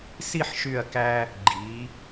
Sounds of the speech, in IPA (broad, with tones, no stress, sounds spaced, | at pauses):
s i˥˧ ħ ʃ y˧˩ ɐ̯ k æ˧ | ɡ͡ǃ i˩˧